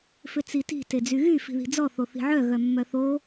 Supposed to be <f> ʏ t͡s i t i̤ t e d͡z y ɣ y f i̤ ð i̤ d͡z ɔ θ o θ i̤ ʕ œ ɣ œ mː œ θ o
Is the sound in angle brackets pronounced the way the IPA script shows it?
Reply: yes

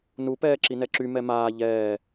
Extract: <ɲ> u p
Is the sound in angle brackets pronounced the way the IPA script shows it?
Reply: no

